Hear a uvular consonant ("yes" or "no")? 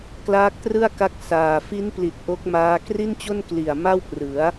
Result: no